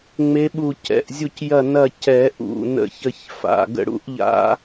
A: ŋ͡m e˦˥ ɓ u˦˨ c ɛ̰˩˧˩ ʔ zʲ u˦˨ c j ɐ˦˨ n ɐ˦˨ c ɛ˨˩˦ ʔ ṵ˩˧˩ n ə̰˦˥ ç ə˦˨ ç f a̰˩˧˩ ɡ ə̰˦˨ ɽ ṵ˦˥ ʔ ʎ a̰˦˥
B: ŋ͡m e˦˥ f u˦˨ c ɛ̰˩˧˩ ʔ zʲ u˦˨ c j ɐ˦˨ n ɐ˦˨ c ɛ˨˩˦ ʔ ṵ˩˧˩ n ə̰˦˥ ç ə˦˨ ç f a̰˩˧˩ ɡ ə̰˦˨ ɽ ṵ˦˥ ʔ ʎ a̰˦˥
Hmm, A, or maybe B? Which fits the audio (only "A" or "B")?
A